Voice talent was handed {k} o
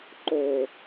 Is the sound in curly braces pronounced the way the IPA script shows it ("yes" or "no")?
no